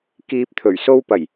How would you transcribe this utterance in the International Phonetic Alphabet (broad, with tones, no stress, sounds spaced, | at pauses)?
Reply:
k iː˧ p̚ t̪ʰ ɵ˨˩ ɥ s o˧ w p ɐ˨˩ j